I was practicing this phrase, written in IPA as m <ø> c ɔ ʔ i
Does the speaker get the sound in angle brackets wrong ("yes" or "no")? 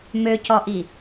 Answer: no